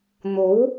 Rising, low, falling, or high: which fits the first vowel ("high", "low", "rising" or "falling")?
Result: rising